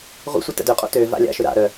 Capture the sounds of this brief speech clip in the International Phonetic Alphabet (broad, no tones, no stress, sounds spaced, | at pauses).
ʁʷ ə̰ sʷ ə t ə̰ d ø qʼ o̰ t ø v a̰ lʲ a̰ ʃ ø ɾ a̰ ɾ œ